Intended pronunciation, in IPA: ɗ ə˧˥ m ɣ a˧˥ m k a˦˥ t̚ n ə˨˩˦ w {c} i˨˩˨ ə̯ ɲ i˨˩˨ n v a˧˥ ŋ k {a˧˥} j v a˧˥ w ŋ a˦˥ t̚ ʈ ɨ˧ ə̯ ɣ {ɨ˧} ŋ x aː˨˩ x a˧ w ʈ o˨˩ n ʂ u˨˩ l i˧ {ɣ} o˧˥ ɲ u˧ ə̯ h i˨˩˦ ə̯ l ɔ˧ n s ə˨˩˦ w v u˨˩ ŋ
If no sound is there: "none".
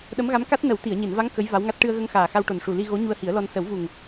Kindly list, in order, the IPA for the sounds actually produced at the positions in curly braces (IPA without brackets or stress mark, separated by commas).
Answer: t̪, ə˧˥, ə˧, ɣ